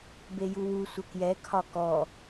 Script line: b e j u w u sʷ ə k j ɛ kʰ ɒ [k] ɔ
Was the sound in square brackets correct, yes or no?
yes